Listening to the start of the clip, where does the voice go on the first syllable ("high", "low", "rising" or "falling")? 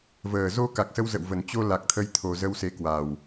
low